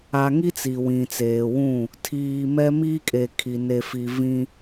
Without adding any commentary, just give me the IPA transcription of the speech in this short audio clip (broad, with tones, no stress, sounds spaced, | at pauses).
a˨ ŋ i˦ t͡s i˨ w ĩ˨ t͡s eː˨ w ũ˦˨ | tʰ iː˨ m ɛ˦ m iː˦ kʼ e˨ kʰ i˨ n e˨ f i˨ v ĩ˦